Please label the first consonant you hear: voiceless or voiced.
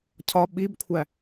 voiceless